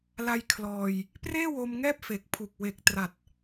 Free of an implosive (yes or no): yes